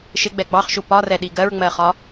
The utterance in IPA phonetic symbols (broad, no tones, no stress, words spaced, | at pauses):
ʃɪɡ͡bɛ ɡ͡bɑχʃu pɒrɛɗi ɡɜɹŋ͡mɜχɒ